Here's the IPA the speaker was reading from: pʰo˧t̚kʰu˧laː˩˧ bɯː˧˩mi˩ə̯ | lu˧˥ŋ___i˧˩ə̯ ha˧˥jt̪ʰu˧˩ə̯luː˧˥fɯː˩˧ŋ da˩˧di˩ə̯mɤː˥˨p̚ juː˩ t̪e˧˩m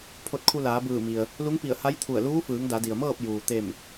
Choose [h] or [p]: p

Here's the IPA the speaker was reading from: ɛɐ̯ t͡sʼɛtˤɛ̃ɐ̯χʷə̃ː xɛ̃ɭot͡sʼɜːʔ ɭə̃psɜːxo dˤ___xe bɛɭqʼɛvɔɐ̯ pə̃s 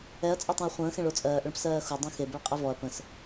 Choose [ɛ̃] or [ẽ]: ɛ̃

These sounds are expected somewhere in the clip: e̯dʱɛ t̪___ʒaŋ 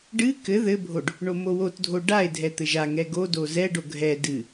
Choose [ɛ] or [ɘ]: ɘ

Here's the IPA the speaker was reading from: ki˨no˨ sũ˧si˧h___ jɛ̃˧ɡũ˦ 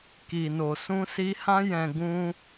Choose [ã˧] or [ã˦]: ã˦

